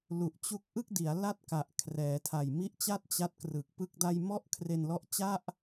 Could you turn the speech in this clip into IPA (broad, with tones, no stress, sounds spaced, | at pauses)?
l u˨˩ ʔ t͡ɕ u˦˥ k̚ ʔ ɯ˥˩ k̚ d i˩˦ a̯ l a˥˩ t̚ k a˨˩ ʔ kʰ r ɛː˩˦ tʰ a˨˩ j m i˦˥ ʔ t͡ɕ a˥˩ t̚ t͡ɕ a˦˥ t̚ k r ɯ˨˩ k̚ p ɯ˥˩ k̚ d a˥˩ j m ɔ˥˩ ʔ kʰ r e˧ n l ɔ˦˥ ʔ t͡ɕ a˥˩ ʔ